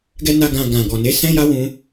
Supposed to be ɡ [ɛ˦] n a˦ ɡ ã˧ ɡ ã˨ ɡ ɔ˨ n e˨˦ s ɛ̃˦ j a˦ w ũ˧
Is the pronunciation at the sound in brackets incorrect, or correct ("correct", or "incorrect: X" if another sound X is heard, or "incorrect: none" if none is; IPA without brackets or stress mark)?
correct